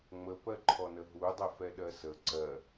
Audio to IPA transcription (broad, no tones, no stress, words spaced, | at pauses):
ŋ͡məpɜǃʰɔnə ɦudˤəfɛ ɗɜsə ǀɜ